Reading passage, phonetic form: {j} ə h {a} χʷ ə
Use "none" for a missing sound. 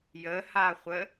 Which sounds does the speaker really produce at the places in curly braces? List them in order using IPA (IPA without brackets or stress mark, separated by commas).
j, a